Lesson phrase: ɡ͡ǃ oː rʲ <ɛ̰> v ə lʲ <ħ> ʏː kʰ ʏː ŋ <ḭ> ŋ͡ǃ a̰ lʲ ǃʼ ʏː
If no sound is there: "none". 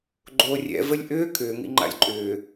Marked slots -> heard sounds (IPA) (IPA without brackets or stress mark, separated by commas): ɛ̰, ʔ, ḭ